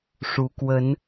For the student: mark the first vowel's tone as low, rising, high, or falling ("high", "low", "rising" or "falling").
rising